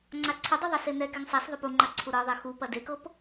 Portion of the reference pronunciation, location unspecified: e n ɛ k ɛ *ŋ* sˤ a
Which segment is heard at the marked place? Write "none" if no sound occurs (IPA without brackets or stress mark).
ŋ